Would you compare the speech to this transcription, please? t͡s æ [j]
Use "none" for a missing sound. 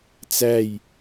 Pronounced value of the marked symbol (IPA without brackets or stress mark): j